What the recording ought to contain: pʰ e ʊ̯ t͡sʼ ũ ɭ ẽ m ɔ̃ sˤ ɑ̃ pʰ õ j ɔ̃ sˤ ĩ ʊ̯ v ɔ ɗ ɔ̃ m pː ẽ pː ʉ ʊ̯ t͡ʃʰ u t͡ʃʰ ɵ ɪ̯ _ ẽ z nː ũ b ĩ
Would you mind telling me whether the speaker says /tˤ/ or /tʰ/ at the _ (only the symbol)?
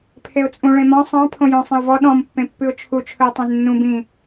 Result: tˤ